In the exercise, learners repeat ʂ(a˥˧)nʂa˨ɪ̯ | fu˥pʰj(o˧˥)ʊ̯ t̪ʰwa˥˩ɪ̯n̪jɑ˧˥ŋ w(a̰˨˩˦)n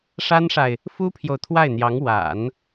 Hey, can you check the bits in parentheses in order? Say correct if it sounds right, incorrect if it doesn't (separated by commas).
incorrect, incorrect, correct